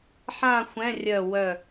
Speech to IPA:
ħ ã˥˧ xʷ ɛ̃˧˥˧ rʲ œ˧˩ w œ˧˩

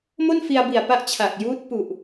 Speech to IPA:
m o˥˩ n f i˧ a̯ b i˨˩ a̯ p a˦˥ ʔ t͡ɕʰ a˨˩ k̚ j uː˦˥ t̚ p u˨˩ ʔ

